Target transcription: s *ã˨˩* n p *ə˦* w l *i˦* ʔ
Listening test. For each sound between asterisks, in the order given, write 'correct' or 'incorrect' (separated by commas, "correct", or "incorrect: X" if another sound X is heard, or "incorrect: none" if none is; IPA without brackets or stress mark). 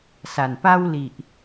incorrect: a˨˩, incorrect: a˦, incorrect: i˨